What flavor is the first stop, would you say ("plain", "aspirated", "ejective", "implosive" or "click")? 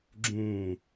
click